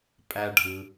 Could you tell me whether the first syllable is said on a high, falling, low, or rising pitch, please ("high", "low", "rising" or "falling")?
high